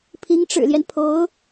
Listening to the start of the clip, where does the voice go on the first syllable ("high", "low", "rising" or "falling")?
rising